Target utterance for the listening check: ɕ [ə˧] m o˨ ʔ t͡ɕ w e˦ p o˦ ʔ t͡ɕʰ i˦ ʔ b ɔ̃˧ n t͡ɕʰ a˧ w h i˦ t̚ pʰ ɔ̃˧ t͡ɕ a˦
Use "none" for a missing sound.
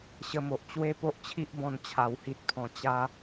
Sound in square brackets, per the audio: ə˧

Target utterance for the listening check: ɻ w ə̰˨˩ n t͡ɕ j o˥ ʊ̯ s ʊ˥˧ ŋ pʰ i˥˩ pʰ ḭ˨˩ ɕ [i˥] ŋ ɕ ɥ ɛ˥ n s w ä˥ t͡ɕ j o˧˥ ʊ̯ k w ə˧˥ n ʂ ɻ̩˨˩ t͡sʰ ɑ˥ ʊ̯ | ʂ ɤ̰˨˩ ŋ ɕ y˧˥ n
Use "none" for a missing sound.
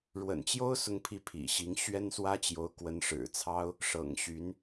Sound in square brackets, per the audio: i˧˥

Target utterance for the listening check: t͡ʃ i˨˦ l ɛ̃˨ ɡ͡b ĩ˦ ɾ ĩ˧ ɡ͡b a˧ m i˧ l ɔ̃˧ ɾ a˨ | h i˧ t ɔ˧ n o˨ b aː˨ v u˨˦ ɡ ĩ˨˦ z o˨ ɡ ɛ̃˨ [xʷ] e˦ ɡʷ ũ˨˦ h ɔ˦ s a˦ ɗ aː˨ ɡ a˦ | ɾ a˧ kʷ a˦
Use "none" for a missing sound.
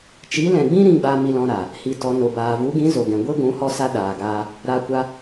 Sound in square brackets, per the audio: ɡʷ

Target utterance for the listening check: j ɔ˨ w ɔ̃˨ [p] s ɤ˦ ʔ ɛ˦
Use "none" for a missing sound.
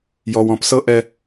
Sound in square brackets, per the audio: p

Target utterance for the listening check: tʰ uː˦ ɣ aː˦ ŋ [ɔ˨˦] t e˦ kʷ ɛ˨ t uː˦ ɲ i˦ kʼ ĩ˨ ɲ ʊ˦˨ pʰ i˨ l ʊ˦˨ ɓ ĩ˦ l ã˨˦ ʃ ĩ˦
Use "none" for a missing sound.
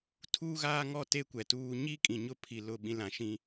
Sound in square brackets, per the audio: ɔ˦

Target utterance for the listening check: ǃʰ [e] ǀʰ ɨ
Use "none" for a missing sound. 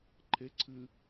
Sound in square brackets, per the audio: e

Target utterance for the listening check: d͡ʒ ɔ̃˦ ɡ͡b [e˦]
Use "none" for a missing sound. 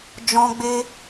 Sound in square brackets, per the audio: e˦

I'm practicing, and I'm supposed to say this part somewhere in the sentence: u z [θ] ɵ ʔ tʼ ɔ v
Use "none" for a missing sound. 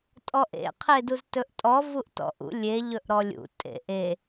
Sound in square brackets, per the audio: t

